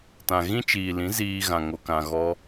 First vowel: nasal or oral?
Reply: nasal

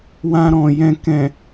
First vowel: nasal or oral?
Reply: nasal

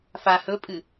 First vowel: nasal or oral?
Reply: oral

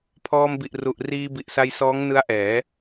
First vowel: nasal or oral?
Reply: oral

